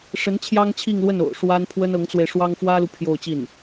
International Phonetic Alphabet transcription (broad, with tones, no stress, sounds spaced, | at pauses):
ʂ ə˧˥ n t͡ɕʰ j ɑ˥ ŋ t͡ɕʰ i˥˧ ŋ l w ə˥˩ n o̰˨˩ ʊ̯ ʂ w a˥ n pʰ w ə˥ n ɤ˧˥ ŋ t͡s w e˧ ɪ̯ ʂ w ɑ˥ ŋ f w ä˥ l u˨ pʰ j o˥˧ ʊ̯ t͡ɕ i˥˩ n